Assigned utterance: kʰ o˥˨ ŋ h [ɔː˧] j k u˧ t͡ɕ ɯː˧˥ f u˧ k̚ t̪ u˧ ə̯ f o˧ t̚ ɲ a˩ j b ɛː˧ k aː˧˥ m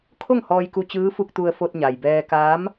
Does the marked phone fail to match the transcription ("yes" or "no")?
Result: no